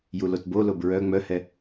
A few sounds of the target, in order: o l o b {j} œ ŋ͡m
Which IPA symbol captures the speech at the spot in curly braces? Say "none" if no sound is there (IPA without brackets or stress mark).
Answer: ɹ